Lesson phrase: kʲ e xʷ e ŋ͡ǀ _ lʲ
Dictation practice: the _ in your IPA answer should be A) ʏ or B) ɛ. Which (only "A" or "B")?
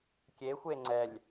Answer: B